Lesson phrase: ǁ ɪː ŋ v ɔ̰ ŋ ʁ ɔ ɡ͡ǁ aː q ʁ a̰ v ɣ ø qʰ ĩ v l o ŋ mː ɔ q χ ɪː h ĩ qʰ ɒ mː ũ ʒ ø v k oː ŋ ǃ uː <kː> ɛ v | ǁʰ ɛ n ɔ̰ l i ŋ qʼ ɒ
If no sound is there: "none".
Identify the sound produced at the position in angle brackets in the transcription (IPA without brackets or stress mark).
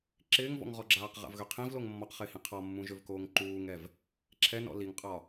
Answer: ŋ